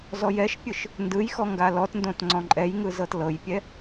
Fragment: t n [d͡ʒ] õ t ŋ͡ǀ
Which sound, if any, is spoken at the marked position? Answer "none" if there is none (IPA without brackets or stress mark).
d